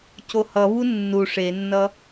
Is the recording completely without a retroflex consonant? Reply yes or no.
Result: no